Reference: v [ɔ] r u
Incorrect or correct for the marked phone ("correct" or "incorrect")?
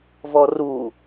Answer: correct